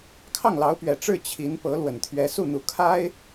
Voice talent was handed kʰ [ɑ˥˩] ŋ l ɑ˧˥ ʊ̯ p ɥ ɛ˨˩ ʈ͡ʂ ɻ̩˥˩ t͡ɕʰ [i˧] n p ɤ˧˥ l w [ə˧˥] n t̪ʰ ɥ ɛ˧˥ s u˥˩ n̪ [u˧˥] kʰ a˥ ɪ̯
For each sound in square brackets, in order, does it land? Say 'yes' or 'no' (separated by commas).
yes, no, no, yes